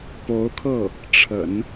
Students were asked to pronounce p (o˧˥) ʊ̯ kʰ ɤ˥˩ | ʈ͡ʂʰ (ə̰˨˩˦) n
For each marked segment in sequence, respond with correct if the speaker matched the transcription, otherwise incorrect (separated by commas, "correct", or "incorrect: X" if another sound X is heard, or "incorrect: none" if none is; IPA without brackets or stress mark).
correct, correct